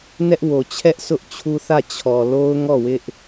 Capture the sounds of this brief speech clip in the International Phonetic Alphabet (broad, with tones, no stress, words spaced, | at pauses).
nɛ˦ʔ wo˨t͡ɕʰɛ˦ʔ sʰʊ˦ʔt͡ɕʰu˦θä˦˨ t͡ɕʰɔ˨lo˦ʊ̯ŋɔ˦˨ wɪ˦ʔ